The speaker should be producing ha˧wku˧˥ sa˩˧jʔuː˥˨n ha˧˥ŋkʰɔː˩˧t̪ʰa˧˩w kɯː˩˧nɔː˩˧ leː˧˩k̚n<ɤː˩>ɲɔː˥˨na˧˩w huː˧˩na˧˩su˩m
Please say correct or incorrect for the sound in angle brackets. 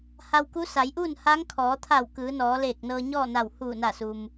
incorrect